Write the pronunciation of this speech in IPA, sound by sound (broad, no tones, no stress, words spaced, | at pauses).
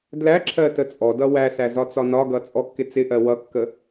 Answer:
dlæǁʰɜ tət͡sʼɔdʌ wæsæ zɒt͡sɒnɒɡʌ t͡sʼɔkːɪt͡sɪʔɜ wʌkːə